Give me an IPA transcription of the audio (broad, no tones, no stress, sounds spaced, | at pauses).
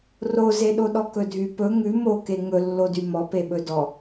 r o z e ɗ o ɗ ɔ k ɵ dʱ y p ɵ ŋ ʉ m o k e ŋ ɵ lː o d y m ɔ p e ɓ ɵ d ɔ